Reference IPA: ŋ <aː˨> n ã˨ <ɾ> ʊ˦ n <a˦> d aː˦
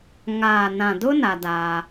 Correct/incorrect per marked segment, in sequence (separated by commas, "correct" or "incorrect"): correct, incorrect, correct